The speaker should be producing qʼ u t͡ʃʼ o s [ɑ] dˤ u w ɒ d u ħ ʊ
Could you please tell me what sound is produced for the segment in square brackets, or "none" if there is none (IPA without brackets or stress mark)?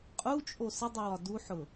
ə